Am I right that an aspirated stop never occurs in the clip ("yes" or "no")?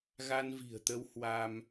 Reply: yes